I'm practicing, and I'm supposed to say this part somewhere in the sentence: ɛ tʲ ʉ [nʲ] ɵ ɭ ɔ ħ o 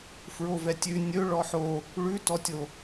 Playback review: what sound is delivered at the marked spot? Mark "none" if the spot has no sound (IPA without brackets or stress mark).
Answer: nʲ